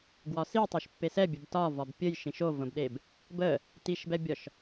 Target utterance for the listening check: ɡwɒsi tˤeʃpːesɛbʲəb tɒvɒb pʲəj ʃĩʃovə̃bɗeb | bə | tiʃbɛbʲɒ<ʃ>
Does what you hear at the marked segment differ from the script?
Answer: no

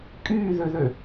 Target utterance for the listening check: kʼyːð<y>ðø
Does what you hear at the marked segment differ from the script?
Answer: yes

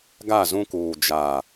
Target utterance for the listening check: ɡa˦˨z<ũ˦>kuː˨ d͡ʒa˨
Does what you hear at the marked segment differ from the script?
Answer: no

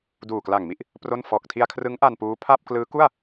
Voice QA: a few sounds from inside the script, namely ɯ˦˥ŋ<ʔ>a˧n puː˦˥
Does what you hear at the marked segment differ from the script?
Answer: no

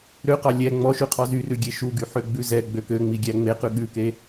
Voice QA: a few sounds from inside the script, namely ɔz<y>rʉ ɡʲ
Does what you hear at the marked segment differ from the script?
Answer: no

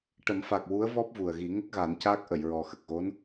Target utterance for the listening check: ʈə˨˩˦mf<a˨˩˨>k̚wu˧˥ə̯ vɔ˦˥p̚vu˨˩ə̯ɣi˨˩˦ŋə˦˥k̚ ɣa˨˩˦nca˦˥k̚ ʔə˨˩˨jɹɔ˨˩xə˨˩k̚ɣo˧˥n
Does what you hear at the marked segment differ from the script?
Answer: yes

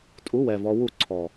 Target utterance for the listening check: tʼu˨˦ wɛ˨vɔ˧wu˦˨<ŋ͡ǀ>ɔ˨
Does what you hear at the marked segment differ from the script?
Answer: yes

